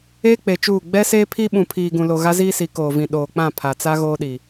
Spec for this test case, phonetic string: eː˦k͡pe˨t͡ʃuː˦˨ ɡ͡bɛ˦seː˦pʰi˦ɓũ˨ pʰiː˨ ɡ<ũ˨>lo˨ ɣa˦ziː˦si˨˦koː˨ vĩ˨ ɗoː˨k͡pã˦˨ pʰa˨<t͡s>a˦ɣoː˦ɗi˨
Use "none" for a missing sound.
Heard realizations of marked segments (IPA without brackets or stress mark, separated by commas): ũ˨, t͡s